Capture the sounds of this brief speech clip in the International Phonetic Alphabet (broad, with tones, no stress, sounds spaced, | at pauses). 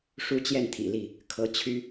ʂ u˦ t͡ɕ j ɛ˥˨ n t̪ʰ ḭ˨˩ l i˥˨ | kʰ ɤ˨˦ t͡ɕʰ y˦